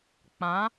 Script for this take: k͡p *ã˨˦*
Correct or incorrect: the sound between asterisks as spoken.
correct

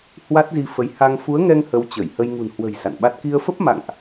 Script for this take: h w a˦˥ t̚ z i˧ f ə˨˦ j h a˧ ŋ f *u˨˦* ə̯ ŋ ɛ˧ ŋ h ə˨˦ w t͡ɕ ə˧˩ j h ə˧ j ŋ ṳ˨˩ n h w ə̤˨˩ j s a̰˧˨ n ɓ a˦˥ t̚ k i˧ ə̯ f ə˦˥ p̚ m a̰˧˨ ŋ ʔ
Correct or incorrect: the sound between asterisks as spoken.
correct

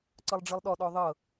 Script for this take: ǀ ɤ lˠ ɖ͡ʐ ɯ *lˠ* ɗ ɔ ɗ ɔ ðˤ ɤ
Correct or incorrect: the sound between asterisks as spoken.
correct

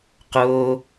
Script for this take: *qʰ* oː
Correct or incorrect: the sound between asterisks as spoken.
incorrect: q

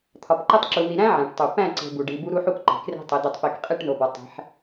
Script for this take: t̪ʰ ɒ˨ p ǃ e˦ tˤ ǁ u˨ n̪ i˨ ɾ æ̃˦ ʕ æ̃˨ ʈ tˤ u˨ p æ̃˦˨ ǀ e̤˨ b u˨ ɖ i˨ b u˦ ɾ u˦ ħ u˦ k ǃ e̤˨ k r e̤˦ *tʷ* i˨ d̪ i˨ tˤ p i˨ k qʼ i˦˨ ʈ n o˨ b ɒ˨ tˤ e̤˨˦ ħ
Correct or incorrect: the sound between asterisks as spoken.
incorrect: tˤ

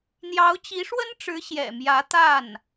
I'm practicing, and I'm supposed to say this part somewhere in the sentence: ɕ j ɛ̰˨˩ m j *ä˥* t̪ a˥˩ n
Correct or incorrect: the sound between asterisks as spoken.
incorrect: ä˧˥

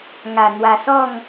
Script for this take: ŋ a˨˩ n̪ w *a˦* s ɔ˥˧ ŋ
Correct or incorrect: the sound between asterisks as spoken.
incorrect: a˨˩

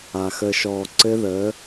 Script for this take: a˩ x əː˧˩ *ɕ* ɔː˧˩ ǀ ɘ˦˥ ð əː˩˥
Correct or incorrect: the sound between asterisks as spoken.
incorrect: ʃ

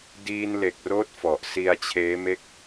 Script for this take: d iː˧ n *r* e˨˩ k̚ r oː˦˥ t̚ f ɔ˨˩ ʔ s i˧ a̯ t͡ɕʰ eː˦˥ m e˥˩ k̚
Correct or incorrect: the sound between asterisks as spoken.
incorrect: l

